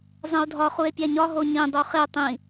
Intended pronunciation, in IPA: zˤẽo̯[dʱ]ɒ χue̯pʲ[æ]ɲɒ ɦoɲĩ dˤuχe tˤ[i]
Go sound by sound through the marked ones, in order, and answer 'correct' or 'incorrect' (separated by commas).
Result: correct, correct, incorrect